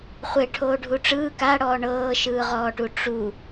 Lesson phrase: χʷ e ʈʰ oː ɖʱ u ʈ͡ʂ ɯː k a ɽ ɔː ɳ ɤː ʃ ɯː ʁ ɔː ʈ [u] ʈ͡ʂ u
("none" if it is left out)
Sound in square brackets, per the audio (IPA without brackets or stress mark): u